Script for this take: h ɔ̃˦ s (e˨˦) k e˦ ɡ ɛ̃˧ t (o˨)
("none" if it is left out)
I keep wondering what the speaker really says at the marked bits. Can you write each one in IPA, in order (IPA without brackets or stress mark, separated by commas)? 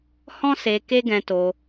e˧, o˧